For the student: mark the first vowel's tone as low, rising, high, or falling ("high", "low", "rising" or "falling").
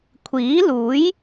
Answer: rising